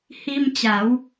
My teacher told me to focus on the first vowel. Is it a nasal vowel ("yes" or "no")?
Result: no